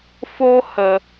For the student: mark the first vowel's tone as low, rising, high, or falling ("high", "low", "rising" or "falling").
high